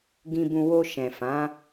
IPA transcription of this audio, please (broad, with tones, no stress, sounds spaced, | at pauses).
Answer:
ɡ ĩ˧ b ũ˧ w o˧ ʃ ɛ̃˨ f ã˨˦